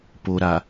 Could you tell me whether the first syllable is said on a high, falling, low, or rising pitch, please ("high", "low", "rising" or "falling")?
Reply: low